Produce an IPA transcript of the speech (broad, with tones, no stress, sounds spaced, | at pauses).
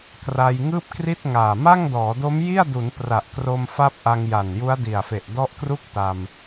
k r a˧ j ŋ ɯː˥˩ p̚ k r i˥˩ t̚ ŋ aː˨˩ m a˥˩ ŋ d ɔː˩˦ d o˦˥ m j i˥˩ a̯ d u˩˦ n p r a˨˩ ʔ k r o˧ m f a˦˥ p̚ ʔ a˧ ŋ j a˨˩ n j u˦˥ a̯ d i˨˩ a̯ f e˨˩ ʔ d ɔ˦˥ ʔ k r u˥˩ k̚ t a˧ m